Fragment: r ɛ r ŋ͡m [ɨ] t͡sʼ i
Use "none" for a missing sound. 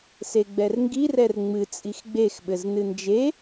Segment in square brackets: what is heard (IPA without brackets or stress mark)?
ɨ